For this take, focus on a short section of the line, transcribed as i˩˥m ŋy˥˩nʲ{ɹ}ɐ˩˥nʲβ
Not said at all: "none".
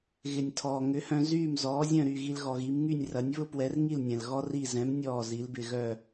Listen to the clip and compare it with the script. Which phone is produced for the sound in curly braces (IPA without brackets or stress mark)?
r